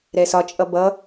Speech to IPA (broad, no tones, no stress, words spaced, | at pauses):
ɾɛsɒt͡ʃʼʌ bʌ